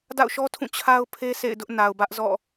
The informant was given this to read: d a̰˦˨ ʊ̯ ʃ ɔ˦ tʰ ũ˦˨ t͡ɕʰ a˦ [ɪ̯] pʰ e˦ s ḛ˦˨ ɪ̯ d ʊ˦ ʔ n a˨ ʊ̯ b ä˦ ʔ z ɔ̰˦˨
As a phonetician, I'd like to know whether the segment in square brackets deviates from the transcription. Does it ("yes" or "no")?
yes